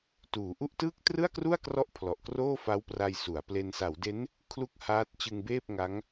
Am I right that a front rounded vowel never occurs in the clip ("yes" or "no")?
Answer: yes